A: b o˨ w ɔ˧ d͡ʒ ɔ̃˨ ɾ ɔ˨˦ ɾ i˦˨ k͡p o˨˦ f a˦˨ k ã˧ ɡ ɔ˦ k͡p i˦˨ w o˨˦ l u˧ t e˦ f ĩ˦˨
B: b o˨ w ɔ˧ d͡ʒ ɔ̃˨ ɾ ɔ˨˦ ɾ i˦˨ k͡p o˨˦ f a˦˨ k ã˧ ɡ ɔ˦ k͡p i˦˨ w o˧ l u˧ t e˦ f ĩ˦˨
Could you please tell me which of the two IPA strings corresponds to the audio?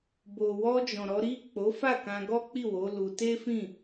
A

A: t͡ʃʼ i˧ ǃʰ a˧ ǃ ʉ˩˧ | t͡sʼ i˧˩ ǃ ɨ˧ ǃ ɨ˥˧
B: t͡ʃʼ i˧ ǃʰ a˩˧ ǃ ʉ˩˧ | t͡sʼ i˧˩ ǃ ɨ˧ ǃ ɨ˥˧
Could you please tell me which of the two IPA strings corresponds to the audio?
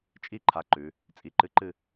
A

